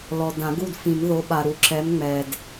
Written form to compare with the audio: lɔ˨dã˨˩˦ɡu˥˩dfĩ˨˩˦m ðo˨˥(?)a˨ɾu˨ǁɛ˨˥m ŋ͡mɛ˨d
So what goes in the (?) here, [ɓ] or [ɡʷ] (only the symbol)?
ɓ